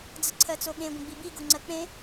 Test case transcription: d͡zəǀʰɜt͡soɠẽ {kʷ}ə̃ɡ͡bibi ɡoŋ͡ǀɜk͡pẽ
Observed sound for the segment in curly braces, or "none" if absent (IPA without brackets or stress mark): ɡʷ